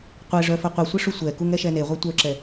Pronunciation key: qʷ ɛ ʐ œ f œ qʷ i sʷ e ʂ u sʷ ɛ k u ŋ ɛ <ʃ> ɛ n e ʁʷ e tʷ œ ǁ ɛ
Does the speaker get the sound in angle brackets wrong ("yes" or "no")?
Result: no